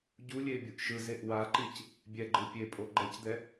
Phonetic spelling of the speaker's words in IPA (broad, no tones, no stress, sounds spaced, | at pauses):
ɟ u lʲ e bʲ u ʔ ʃ ɯ z e ʔ w a ǃ i c | bʲ ɛ ɡ͡ǃ ɯ pʲ e pʼ o ɡ͡ǃ ɛ c d̪ ɛ